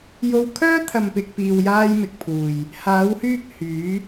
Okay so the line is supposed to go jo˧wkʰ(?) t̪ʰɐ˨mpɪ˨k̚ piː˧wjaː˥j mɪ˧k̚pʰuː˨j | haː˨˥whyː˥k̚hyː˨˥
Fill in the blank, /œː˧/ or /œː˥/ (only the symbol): œː˥